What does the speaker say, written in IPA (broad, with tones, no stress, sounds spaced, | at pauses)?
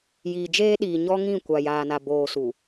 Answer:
j iː˨ d͡ʒ eː˦ ɗ iː˨ ɲ ɔ˦ ŋ ĩ˦˨ kʷ a˨ j aː˨ n a˨ b oː˨ s u˨